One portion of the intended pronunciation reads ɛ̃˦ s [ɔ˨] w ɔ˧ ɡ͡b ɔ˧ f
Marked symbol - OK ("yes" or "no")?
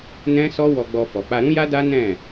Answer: no